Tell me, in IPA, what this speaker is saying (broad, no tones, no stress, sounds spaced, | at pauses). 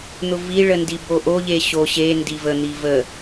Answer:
n̪ ʊ v i ɭ ə n d i b o ʔ o ʎ e ɕ o ɕ e n d i v ə n̪ i v ə